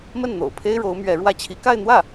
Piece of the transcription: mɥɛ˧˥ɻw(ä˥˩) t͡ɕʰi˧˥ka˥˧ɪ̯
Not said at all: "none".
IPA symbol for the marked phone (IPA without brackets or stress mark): ä˥˩